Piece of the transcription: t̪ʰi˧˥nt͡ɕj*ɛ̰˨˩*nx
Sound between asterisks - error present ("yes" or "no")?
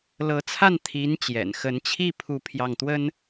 no